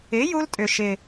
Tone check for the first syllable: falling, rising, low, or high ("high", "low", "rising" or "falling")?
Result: rising